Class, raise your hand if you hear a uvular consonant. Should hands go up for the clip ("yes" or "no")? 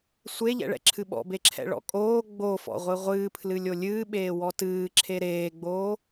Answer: yes